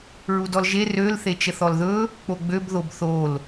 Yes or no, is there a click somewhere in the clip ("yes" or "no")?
no